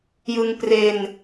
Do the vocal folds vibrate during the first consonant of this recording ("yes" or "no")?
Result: yes